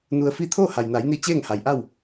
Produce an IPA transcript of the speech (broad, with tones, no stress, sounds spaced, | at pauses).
n u˧ ə̯ f i˥˨ t̪ʰ oː˥˨ h a˩ j n a˩˧ j n i˧ t͡ɕ eː˥˨ ŋ h a˩ j ʔ a˥˨ w